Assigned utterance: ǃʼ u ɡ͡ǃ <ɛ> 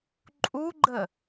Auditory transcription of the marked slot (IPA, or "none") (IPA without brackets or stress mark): ə